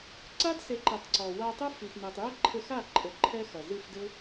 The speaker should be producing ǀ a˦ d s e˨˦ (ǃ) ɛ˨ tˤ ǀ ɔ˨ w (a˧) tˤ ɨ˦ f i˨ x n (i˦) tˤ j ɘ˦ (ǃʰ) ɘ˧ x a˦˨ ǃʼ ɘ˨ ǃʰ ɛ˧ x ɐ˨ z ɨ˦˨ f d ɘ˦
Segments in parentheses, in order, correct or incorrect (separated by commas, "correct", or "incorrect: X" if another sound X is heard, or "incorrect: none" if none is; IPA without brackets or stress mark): correct, correct, incorrect: i˨, correct